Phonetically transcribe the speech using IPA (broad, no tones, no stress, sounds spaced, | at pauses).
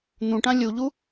n̪ ũ ʈ ã lʲ u ʎ u